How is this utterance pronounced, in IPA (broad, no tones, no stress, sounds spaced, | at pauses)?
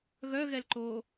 ɣ œ ɣ ɛ l ǃ oː